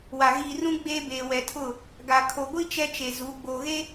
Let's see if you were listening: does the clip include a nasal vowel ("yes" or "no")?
yes